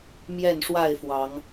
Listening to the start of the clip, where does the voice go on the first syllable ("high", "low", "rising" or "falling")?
falling